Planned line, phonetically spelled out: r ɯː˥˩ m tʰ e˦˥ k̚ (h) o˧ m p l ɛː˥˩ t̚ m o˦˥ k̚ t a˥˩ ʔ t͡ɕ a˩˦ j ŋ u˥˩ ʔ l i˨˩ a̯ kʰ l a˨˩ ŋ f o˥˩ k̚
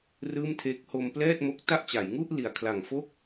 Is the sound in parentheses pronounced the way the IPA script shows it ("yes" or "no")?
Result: yes